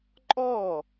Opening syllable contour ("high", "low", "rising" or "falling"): falling